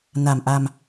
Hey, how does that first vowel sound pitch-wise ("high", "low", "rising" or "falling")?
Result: low